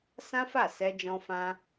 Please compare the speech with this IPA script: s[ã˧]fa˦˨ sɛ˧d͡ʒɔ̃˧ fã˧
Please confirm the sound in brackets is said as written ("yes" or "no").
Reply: no